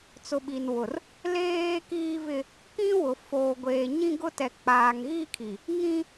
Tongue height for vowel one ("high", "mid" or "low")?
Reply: high